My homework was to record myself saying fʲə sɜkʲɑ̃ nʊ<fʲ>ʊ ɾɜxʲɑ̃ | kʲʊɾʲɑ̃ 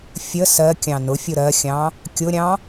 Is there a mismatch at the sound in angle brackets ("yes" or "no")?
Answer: no